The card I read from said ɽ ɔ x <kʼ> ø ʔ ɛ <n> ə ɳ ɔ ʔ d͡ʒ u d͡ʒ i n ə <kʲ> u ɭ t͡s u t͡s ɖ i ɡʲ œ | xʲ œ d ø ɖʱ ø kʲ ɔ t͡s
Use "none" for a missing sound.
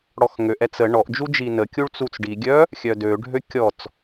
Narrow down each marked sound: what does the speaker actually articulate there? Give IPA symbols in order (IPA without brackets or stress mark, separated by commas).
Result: ŋ, t͡s, kʲ